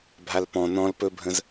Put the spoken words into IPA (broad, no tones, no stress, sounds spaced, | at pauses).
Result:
bʱ a l p ɔ̃ n ɔ̃ l p ɵ bʱ ə̃ z